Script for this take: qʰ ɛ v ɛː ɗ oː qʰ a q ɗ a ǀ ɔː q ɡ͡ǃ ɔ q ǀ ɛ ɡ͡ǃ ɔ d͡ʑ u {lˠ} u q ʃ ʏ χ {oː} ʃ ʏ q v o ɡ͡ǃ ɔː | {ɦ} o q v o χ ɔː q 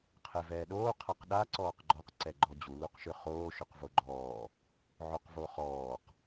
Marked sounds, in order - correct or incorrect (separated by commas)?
incorrect, correct, incorrect